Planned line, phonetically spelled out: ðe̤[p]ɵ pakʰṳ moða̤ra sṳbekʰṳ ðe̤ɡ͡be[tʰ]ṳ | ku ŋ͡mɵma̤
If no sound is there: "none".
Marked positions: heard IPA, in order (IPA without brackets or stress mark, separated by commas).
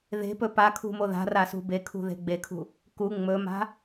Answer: p, kʰ